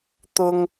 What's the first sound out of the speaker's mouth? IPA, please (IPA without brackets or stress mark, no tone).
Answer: t̪